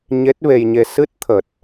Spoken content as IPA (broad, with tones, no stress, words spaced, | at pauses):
ɲe˦˥t̚ve˧jɲe˧ sɨ˦˥t̚t̪ʰə˨˩t̚